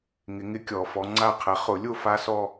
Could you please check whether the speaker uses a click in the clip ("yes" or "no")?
yes